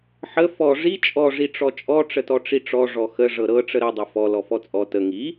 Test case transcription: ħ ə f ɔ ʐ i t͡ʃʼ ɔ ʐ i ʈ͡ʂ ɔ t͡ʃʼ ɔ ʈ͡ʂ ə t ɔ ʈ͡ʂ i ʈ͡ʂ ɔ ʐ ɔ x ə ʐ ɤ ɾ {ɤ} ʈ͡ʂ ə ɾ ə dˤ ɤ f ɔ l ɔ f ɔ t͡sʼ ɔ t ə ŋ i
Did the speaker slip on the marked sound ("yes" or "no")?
no